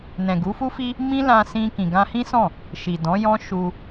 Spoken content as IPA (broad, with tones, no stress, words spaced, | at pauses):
nɛ̃˨ɡu˨˦fu˦fi˦ | mĩ˦lã˧sĩ˧ kĩ˨ɡã˧hĩ˦sɔ̃˦˨ | ʃi˨dɔ̃˨˦jɔ̃˦ ʃu˧